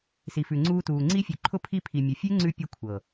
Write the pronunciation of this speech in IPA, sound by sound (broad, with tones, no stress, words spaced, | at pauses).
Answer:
si˨fʉ˨ ŋ͡ǀuː˧tuː˨ ŋ͡ǀi˧fʲʉ˨ ǃʰʊ˧ pʰi˧pʰi˨ mʲʊ˨fʲʉ˦ŋ͡ǀʉ˧ pʲʊ˦kʷʰɤ˨